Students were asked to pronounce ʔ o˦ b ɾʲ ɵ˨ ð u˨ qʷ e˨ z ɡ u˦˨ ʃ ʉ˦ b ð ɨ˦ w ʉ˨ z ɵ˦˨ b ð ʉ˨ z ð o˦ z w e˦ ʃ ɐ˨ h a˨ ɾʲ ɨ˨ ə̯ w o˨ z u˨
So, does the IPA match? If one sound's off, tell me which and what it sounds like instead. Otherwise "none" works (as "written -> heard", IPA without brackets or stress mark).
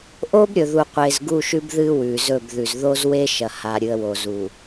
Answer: none